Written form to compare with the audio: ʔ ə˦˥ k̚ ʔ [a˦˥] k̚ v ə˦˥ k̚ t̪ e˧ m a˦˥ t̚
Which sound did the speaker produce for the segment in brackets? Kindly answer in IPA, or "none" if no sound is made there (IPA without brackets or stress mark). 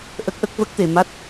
ə˦˥